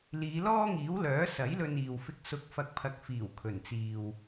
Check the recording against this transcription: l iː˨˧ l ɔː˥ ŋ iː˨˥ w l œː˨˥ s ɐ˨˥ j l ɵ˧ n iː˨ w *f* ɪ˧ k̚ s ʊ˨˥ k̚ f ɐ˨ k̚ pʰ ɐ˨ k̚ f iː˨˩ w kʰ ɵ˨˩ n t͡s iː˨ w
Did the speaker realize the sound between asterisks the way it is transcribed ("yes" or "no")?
yes